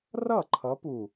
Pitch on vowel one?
falling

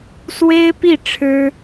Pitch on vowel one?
high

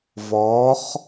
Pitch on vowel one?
rising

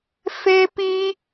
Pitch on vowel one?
high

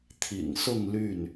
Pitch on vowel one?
low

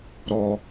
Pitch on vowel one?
low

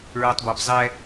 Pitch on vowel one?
low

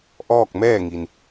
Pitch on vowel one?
falling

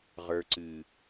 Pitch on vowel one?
low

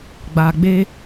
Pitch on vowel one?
low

